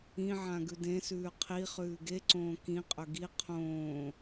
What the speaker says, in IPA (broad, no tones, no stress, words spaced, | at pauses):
ĩʕã ɡʉdẽsʉː qʰi χʉːɡeǀõː kĩqʼɵ ɡi qʰõː